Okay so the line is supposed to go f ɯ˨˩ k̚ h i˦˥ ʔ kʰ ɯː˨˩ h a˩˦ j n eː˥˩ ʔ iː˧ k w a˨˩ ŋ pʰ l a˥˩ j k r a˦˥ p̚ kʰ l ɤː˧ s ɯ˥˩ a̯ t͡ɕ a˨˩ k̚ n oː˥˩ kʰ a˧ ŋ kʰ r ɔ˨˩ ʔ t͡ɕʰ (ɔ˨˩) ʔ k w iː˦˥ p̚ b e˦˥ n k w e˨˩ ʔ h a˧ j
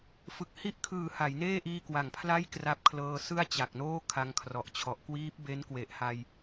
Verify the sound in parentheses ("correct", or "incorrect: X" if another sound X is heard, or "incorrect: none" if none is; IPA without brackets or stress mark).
correct